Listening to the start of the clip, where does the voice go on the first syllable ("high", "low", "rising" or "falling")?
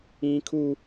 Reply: high